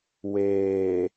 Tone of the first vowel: low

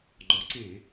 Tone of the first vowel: rising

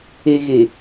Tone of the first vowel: low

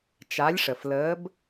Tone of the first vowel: rising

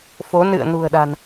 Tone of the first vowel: rising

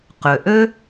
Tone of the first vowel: low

